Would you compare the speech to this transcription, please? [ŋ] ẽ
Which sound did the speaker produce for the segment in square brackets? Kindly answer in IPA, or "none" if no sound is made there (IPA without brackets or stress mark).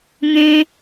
ŋ